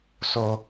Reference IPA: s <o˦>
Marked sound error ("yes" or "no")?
no